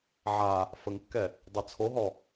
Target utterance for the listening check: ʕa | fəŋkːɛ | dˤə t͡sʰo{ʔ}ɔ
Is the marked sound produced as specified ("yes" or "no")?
no